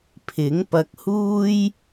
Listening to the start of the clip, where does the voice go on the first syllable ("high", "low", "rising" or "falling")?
rising